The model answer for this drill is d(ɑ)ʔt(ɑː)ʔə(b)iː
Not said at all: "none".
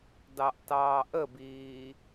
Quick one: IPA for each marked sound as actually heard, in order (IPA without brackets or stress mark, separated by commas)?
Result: ɑ, ɑː, b